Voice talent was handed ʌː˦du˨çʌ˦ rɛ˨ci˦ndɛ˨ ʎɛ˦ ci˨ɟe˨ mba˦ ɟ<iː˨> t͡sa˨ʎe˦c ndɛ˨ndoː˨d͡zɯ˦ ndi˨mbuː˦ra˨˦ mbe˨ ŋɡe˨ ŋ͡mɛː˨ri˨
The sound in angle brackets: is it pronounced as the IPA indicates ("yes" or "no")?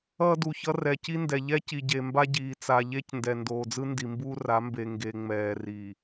yes